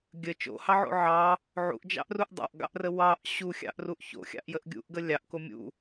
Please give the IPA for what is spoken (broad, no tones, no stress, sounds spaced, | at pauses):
ɡʲ ə t͡ʃ o̰ h ɑ ʕ o̰ ʕ ɑ | ʕ ṵ ʔ d͡ʒ ɑ̰ ʔ r u ʔ dˤ ɑ̰ ʔ ɡ ɑ̰ ʔ r ə w ɑ ʔ ɕ u xʲ ɑ̰ ʔ r u ʔ ç o̰ xʲ ɑ̰ ʔ j ə ʔ ɡʲ ṵ ʔ ɡ ə lʲ ɑ ʔ k o mʲ ṵ